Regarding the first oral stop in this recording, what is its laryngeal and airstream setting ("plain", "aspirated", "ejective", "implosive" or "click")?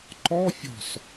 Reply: click